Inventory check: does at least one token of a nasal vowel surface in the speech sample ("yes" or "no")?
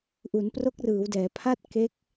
no